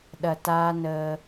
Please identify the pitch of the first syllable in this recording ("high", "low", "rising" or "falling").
low